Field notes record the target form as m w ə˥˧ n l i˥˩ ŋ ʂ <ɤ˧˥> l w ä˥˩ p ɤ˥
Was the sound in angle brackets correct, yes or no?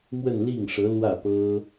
yes